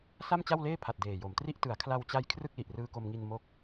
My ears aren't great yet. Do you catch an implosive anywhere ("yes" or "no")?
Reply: no